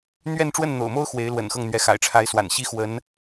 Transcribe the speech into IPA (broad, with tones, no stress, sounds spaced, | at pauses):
n̪ ɥ ɛ˥˧ n ʈ͡ʂ w ə˥˩ n n̪ o̰˨˩ ʊ̯ m o˥ ʊ̯ x w e˧˥ ɪ̯ l w ə̰˨˩ n x ɤ˥˩ ŋ n̪ ɥ ɛ˧˥ x a̰˨˩ ɪ̯ ʈ͡ʂʰ a˧˥ ɪ̯ s w a̰˨˩ n ɕ i˥ x w ə˧˥ n